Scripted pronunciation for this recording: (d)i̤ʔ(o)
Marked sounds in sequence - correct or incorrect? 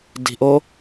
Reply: correct, correct

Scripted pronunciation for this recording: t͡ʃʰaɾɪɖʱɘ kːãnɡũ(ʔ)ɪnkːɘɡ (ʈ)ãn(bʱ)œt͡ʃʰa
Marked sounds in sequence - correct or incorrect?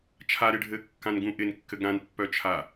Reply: correct, incorrect: ɾ, incorrect: pː

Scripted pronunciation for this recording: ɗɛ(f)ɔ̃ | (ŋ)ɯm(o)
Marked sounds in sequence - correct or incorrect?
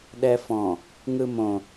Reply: correct, correct, incorrect: õ

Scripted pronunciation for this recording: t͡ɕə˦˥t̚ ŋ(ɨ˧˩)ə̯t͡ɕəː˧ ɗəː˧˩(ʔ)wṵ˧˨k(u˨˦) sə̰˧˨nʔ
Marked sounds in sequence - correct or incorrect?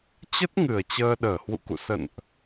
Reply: correct, incorrect: h, incorrect: ṵ˧˨

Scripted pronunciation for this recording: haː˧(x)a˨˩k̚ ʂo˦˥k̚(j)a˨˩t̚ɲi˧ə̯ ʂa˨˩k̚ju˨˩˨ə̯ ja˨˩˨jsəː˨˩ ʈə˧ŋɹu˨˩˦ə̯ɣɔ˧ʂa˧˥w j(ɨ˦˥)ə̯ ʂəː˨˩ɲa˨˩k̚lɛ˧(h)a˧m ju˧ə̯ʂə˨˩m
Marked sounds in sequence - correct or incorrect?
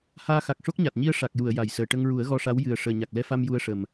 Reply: correct, incorrect: ɲ, incorrect: ɨ˨˩, incorrect: f

